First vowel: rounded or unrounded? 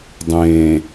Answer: unrounded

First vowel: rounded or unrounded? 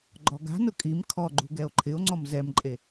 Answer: rounded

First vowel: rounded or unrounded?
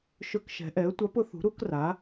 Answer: rounded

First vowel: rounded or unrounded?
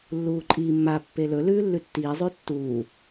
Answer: rounded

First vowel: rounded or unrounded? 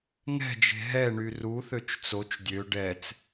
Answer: unrounded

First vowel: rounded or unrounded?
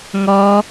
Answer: rounded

